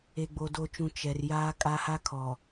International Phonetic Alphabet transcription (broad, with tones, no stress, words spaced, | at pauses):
e˨ɡ͡bo˨ do˨t͡ʃũ˨ t͡ʃɛ˨r jaː˦kʼa˦ha˦ kʰɔ˨